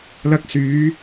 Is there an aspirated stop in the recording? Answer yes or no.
no